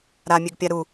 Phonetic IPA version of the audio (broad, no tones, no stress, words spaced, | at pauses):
ɾamʲøɡpʲa ɾu